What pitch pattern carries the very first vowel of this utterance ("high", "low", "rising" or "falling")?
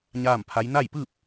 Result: falling